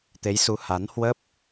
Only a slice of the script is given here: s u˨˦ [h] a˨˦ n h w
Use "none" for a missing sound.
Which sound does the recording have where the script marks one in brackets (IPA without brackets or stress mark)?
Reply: h